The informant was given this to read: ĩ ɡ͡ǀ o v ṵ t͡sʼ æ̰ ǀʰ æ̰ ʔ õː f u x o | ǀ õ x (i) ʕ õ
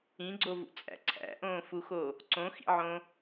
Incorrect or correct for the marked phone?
incorrect: ḭ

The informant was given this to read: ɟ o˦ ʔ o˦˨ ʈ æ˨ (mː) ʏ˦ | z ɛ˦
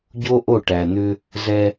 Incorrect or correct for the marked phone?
incorrect: n̪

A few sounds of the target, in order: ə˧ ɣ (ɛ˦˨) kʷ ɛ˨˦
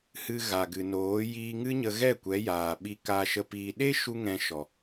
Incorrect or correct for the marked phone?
correct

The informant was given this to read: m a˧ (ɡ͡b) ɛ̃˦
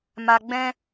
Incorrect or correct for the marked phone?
correct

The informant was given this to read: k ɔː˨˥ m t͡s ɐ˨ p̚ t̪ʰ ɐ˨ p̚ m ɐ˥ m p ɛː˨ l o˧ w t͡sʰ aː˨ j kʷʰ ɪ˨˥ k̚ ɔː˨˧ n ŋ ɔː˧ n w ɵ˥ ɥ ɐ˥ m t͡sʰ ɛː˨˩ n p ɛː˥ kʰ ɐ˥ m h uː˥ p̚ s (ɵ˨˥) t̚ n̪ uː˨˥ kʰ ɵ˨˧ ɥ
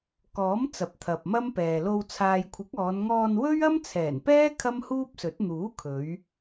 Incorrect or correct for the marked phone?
correct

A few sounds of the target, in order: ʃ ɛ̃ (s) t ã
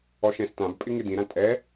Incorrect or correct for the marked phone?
correct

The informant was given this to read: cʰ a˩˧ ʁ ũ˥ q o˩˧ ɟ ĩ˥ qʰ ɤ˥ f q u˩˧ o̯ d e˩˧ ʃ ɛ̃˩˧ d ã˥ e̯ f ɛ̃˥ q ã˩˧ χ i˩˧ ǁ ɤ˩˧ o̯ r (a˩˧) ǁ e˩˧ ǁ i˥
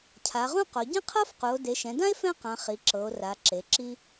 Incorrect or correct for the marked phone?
correct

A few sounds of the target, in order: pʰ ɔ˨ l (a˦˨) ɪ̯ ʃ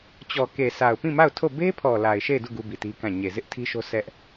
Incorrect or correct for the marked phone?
incorrect: a˨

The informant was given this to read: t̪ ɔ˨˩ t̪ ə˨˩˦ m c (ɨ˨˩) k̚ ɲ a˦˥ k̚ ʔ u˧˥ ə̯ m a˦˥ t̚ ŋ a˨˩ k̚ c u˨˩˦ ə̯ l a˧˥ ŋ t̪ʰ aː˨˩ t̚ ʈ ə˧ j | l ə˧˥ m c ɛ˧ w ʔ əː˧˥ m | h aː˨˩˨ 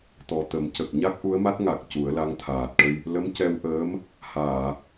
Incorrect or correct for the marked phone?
incorrect: ə˨˩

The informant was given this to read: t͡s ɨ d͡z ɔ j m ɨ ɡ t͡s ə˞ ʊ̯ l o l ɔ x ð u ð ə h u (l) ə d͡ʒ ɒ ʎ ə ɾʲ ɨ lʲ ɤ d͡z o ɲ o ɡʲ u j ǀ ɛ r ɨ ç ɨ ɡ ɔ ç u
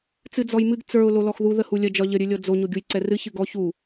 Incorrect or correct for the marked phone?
incorrect: lʲ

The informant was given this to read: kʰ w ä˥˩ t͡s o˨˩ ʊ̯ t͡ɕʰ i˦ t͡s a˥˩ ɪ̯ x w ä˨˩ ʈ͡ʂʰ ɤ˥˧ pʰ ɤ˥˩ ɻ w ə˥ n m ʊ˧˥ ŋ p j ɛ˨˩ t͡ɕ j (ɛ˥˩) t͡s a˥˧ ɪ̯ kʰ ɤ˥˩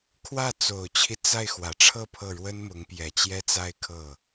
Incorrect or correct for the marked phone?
incorrect: ɛ˥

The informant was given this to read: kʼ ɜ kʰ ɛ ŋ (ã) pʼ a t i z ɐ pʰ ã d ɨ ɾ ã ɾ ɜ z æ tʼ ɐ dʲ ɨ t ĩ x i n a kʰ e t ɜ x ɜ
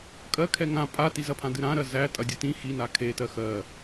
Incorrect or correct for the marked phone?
correct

